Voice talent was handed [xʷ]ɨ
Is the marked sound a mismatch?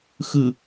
yes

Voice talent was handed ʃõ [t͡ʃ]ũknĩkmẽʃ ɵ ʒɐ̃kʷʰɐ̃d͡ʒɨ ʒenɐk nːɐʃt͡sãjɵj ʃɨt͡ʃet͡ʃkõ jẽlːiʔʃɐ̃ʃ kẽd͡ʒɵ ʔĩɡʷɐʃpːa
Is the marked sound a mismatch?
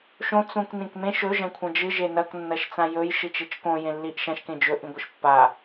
yes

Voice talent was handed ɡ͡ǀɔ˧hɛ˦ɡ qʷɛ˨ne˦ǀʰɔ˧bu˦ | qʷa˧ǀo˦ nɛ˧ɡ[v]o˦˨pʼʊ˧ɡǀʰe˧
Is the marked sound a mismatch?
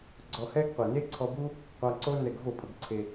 no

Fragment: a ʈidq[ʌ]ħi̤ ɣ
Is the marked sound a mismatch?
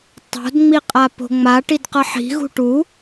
no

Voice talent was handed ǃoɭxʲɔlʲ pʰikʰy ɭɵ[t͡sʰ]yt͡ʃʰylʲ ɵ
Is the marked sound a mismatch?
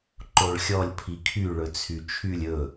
no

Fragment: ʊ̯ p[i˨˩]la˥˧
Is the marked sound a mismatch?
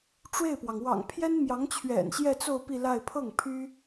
yes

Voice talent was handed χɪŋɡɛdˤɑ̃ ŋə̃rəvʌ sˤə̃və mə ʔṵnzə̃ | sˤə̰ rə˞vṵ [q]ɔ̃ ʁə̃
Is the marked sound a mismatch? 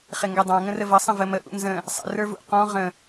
no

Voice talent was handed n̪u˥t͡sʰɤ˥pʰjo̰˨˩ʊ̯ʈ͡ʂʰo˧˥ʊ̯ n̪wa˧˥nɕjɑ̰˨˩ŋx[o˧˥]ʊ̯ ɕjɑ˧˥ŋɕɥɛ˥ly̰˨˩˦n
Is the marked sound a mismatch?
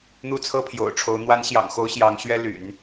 no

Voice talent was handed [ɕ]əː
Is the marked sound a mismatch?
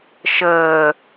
yes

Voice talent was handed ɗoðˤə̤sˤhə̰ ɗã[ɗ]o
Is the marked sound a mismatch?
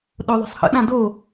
yes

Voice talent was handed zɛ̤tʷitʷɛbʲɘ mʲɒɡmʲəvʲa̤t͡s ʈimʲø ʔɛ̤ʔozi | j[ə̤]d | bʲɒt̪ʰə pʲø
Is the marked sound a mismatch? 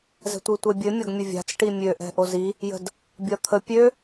no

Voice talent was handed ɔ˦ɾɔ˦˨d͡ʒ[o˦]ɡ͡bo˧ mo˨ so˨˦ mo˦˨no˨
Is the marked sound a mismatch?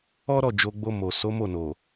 yes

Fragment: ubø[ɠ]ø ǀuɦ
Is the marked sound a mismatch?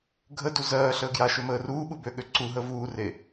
no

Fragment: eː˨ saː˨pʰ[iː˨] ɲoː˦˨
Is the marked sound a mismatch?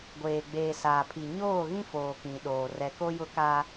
yes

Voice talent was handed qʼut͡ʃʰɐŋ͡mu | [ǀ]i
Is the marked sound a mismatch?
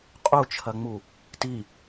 yes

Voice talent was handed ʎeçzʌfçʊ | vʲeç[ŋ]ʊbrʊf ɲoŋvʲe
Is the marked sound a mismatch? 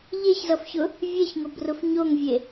no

